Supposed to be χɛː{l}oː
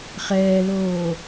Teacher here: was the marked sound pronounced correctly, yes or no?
yes